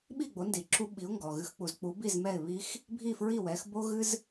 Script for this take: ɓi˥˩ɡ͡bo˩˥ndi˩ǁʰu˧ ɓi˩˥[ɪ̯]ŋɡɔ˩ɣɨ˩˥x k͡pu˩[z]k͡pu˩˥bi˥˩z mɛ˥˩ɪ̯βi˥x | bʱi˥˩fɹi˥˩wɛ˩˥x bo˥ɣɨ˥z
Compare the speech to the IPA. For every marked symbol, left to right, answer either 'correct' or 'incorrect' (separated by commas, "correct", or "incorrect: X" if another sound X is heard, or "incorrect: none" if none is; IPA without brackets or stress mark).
incorrect: ʊ̯, correct